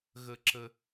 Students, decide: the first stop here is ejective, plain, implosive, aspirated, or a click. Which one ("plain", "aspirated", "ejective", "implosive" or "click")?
click